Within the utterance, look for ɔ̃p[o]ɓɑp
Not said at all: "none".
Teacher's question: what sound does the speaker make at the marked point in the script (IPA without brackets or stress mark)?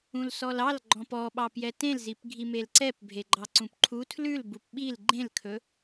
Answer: ɔ